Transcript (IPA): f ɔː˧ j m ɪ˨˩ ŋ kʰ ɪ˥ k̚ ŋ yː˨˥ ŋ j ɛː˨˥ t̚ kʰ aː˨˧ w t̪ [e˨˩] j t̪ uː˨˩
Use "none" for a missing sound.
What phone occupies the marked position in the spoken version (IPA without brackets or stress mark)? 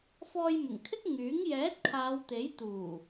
e˨˥